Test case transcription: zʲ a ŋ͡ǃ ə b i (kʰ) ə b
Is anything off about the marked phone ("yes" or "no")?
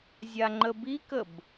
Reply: yes